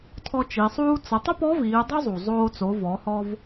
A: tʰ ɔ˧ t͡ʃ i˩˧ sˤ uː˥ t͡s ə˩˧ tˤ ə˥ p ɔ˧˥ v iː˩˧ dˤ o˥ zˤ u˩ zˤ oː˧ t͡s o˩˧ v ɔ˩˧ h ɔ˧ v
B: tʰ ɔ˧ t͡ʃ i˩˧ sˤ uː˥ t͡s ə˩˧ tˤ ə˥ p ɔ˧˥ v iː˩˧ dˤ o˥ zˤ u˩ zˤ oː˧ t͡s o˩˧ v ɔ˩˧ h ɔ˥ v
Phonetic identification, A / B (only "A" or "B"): A